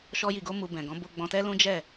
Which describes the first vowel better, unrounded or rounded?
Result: rounded